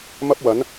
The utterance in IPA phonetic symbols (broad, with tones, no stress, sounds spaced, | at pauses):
m ɐ˥ p̚ w ɐ˨˥ n